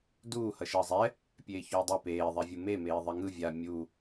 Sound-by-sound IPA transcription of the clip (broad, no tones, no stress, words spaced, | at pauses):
duː hʌʃʌːzˤɛ | pʲeːçoːdˤe peː ðˤɛvʲume meːðˤɛŋɯ vʲa mʲu